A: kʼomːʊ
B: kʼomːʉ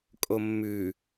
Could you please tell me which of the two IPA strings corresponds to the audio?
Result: B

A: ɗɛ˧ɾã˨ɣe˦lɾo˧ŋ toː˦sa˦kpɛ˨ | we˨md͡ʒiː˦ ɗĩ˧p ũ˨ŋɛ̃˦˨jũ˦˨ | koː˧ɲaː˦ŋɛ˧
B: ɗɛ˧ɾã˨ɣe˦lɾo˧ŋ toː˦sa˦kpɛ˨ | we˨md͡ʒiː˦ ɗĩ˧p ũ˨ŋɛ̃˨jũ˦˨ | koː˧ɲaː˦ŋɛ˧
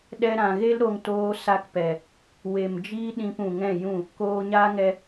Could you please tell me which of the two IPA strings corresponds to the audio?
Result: A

